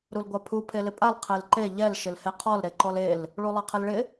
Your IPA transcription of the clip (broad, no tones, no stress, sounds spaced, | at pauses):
ɾ u l ɡʷ a pʰ u pʰ e l ɪ pʼ a l qʰ e l ǃ e ʎ ɛ l ʃ ɪ l h e qʰ ɔ l ɾ e ǃ ɔ l e l | ɭ u lˠ a qʰ ɪ l ɭ ɪ